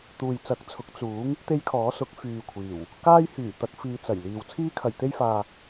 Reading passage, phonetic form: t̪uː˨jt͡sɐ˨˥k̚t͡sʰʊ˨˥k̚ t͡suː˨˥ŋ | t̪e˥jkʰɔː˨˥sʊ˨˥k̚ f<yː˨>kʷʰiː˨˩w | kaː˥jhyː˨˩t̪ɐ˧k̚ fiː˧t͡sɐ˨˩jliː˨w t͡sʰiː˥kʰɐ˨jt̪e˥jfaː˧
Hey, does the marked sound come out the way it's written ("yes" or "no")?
yes